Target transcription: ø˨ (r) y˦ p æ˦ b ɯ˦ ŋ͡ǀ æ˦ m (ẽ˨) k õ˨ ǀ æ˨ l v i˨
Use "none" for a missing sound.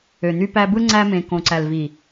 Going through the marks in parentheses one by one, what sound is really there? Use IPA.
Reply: n̪, ẽ˨

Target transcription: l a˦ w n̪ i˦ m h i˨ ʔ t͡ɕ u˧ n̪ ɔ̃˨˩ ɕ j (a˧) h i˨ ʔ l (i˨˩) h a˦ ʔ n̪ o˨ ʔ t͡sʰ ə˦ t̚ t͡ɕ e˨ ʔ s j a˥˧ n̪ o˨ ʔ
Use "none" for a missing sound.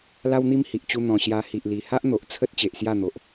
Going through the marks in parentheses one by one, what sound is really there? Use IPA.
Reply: a˧, i˨˩

